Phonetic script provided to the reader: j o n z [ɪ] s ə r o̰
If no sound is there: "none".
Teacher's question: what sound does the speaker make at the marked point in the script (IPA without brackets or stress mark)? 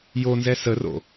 ɛ